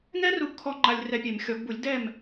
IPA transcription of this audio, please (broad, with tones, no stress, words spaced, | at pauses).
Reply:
ŋɛ˥ru˧bkʰɔ˧ ŋ͡ǃa˧lʲrɛ˧pʲe˨˩˦m xʲɔ˨˩˦ɡbu˨˩˦lʲ dɛ˥˨m